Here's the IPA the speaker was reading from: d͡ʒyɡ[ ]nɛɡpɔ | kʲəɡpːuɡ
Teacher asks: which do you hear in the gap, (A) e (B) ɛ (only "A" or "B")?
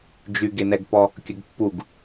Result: A